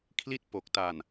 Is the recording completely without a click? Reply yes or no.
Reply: yes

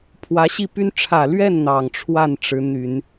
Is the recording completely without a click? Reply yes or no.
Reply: yes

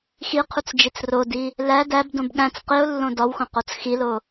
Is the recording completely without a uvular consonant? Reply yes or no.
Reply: no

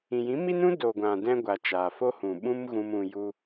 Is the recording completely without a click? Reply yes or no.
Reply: yes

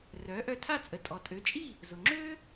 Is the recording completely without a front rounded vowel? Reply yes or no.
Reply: no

